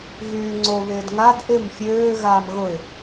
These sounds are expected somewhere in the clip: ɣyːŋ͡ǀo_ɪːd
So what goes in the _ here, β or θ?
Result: β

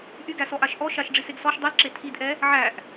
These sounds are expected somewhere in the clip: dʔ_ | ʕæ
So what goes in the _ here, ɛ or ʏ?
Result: ɛ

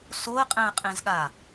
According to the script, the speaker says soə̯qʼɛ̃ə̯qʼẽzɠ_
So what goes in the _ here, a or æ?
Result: a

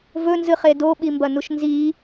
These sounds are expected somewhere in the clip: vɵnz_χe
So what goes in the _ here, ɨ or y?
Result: ɨ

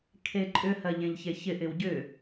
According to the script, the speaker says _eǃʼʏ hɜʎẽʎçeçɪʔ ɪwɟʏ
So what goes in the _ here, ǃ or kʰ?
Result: kʰ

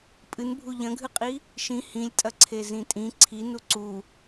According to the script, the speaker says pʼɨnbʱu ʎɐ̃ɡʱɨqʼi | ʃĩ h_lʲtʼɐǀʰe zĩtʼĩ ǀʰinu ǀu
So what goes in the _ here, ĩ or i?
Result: ĩ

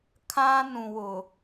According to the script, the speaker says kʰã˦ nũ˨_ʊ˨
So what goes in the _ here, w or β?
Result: w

